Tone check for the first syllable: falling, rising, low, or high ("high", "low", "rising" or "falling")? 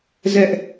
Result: high